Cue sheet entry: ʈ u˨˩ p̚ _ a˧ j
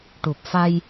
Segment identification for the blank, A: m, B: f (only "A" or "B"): B